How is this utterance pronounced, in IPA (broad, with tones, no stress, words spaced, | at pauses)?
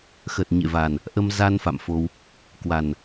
xə˨˩t̚ɲḛ˧˨va˨˩n | ʔə˧m za˧n fa̰˧˨mfo˧w | kwa˨˩n